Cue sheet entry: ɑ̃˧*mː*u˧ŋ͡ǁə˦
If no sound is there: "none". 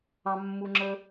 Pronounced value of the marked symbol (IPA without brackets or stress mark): mː